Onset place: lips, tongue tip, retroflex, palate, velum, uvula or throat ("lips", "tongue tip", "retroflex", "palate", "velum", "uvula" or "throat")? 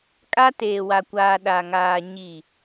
velum